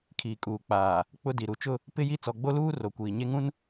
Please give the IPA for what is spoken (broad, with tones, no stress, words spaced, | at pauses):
kʰiː˨kʼuː˨k͡paː˨ | k͡pʊ˦di˨ ɾu˨t͡ʃʊ˦ | pɪ˦ji˦ t͡sɔ˨ɡ͡bo˦luː˦ro˨ kʷiː˨ɲe˦ŋũ˦n